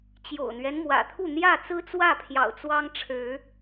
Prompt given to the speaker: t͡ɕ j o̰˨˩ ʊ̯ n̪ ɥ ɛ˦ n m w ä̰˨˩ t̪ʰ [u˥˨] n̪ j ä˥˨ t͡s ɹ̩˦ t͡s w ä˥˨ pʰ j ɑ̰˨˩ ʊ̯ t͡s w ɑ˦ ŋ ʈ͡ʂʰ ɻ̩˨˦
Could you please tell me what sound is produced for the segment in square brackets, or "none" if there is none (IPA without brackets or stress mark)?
u˥˨